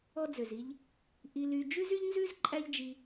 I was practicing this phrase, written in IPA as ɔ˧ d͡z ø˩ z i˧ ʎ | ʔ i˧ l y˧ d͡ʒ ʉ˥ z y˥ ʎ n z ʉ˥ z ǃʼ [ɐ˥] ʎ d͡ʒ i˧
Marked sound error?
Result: yes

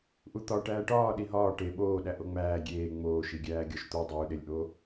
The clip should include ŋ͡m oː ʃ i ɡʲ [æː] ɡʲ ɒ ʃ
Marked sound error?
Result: no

